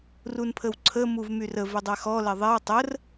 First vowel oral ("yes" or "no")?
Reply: yes